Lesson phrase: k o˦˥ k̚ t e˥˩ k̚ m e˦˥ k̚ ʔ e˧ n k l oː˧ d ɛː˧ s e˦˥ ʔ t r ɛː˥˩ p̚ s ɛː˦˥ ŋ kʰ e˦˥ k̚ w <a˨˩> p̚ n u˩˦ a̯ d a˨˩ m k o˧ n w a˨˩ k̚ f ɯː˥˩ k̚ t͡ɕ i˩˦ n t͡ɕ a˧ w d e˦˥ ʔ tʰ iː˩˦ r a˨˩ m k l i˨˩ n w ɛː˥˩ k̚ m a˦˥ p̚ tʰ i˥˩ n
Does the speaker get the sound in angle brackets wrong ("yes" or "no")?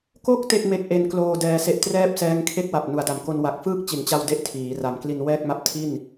no